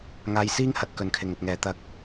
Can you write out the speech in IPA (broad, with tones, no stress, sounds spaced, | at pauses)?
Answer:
ŋ aː˧ j s iː˥ ŋ h ɐ˨ t̚ k ɵ˨ n kʰ ɪ˨ ŋ ɵ˨ t̚ ŋ ɛː˨ t̪ ɐ˧ k̚